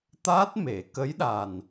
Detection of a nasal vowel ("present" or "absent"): absent